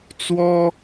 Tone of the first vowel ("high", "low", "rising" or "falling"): high